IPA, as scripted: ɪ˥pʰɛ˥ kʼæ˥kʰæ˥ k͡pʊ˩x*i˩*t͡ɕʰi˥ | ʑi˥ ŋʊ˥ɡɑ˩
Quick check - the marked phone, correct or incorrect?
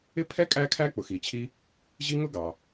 correct